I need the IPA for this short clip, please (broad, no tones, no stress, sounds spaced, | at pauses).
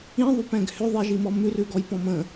ĩ ðˤ ʉ p ɛ̃ ɡ h ʏ ðˤ i ʒ i m ɔ m ʉ r ʉ ɡ ɔ j p ɔ̃ m ə̃